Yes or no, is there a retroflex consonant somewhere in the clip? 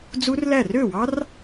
no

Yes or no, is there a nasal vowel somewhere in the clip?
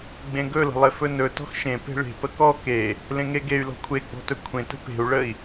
yes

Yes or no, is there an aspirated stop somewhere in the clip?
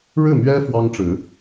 no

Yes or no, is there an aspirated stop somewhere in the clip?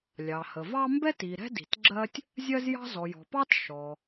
no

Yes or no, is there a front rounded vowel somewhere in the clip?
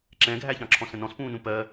no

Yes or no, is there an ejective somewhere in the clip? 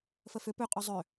yes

